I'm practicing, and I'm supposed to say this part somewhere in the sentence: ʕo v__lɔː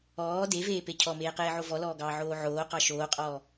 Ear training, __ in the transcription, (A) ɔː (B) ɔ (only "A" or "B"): B